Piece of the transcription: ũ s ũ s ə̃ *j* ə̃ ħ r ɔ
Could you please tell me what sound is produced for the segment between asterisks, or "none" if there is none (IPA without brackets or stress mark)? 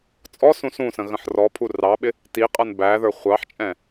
ɣ